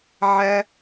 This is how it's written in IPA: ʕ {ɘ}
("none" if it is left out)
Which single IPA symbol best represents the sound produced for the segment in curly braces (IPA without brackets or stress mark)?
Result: ɛ